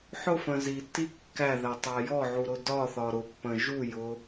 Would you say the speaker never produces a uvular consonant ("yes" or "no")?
yes